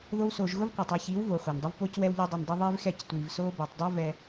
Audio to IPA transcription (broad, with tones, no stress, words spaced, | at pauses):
ðo˦wsoː˧ʒ ɣʊ˦vqʷæ˨tˤɛ˧çiː˨˦w voː˨χʷæ˨ndˤʊ˦vpoː˦c wɛ˧wʎo˧dˤi˨ndˤʊ˧ ðˤiː˦vxɛ˦˨c tʷiː˨vsoː˦bɛː˨tˤ dˤo˦vɛ˧